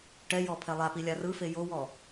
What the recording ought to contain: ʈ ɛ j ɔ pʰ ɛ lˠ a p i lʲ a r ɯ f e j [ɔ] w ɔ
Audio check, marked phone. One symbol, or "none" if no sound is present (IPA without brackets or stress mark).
o